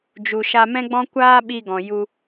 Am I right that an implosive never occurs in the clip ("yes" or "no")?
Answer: no